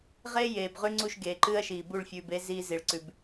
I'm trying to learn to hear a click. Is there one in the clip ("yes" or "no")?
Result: yes